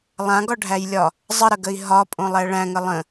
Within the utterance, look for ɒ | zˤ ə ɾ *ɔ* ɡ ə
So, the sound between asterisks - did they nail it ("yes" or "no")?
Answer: no